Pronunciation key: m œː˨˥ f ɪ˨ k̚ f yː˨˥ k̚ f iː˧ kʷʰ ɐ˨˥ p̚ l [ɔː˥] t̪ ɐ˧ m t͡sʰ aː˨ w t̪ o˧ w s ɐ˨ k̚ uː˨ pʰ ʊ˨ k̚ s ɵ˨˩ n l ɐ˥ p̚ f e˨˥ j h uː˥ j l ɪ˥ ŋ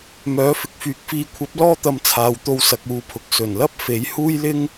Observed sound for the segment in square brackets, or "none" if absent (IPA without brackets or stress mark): ɔː˥